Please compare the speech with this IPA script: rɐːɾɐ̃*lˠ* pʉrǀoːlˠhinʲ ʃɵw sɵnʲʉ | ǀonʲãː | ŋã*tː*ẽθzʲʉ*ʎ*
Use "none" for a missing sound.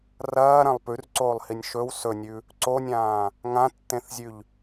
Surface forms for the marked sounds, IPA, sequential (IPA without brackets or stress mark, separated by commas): lˠ, tː, ʎ